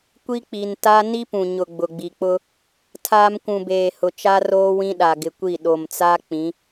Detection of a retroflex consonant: absent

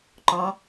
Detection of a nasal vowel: present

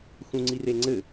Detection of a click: present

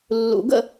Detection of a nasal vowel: absent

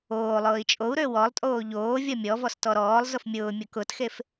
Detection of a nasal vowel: absent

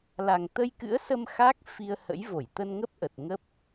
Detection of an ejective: absent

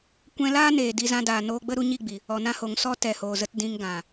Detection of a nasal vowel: present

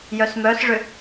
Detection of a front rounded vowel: present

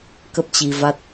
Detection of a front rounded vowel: absent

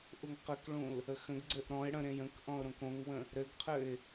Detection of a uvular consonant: present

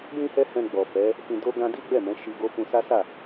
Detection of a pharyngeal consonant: absent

